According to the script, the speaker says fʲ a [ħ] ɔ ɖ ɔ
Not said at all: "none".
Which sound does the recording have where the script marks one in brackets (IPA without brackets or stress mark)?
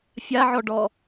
ʕ